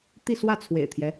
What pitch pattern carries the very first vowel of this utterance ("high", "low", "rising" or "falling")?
falling